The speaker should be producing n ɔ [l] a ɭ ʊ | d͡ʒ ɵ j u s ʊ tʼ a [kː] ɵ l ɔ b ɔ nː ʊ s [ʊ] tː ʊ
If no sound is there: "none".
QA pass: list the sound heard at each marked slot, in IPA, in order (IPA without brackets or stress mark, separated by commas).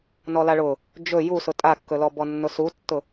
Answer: l, kː, u